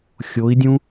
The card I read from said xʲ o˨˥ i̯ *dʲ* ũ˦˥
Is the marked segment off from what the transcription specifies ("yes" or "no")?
no